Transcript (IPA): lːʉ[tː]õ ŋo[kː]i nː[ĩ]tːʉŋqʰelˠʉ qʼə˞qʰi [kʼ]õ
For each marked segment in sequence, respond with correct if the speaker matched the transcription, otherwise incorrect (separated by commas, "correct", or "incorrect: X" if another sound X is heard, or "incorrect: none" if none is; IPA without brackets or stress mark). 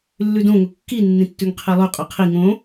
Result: incorrect: d, correct, correct, incorrect: ŋ